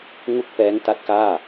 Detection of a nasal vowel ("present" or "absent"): absent